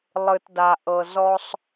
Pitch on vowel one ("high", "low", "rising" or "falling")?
low